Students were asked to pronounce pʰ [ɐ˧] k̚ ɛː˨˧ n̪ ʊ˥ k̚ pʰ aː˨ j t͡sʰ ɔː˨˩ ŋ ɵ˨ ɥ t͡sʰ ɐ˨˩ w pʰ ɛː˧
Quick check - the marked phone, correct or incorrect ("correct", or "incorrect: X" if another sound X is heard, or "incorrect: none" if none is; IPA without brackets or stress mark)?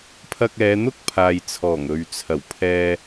correct